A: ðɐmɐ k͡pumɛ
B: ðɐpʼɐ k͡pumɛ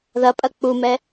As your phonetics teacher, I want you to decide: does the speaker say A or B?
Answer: B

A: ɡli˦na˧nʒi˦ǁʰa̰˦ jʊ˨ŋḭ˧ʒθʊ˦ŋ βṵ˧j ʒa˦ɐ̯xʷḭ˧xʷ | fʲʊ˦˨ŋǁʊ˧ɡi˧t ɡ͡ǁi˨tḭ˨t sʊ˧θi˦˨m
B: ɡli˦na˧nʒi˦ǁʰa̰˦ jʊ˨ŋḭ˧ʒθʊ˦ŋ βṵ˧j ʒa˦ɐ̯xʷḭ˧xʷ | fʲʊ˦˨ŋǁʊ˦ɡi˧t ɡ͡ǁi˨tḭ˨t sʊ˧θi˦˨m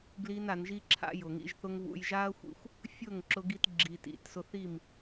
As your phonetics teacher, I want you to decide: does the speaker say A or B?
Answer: A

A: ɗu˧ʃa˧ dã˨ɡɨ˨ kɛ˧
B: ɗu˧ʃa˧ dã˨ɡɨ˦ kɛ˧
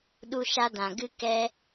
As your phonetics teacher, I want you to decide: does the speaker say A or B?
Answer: B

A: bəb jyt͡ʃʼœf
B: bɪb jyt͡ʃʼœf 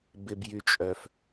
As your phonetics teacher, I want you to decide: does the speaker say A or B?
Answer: B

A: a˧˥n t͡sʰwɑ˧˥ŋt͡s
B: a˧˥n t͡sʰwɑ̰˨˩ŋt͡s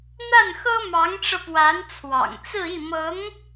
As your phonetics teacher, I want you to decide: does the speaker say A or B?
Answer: B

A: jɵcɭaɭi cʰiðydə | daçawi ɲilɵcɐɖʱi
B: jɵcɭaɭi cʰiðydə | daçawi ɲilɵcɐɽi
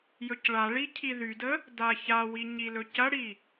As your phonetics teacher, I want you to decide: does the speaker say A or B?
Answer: B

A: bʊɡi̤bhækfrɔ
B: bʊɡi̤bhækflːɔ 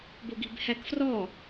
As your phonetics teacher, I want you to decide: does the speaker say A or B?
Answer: A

